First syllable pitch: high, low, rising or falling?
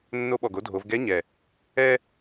rising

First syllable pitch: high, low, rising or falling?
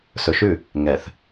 low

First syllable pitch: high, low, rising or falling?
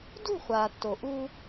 falling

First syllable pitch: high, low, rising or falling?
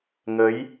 rising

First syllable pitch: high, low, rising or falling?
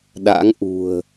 rising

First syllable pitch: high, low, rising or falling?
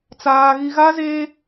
low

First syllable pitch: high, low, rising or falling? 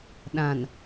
low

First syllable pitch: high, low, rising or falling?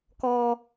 low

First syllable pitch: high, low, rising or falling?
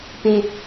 high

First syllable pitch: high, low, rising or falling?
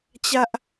high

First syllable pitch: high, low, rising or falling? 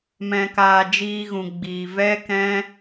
low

